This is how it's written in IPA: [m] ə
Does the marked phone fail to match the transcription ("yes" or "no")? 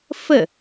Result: yes